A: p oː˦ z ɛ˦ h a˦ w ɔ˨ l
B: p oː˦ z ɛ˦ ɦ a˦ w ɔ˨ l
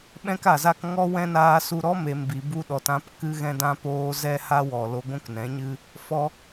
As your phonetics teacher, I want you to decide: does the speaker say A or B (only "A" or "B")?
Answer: A